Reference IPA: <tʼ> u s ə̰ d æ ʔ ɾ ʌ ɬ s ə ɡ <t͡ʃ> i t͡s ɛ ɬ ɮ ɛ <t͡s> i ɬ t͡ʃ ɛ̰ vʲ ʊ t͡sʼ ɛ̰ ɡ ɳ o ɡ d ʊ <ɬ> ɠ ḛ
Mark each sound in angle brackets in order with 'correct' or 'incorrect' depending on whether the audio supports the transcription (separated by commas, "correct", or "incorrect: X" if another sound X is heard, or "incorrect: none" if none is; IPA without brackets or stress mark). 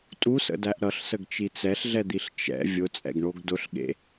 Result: correct, correct, incorrect: d̪, correct